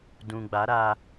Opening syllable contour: low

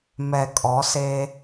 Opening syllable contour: low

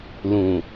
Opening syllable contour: low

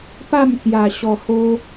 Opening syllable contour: falling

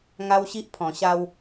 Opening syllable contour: high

